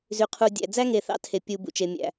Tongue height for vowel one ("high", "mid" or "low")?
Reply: high